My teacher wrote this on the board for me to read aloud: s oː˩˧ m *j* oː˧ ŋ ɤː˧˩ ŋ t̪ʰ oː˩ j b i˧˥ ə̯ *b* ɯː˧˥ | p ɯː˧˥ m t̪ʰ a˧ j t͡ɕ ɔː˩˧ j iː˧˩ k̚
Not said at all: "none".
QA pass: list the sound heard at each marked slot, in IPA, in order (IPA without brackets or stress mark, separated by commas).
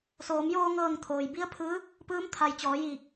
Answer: j, pʰ